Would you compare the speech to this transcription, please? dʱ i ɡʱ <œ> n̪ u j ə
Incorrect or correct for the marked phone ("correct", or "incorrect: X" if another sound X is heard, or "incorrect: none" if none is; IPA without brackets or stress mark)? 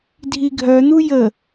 correct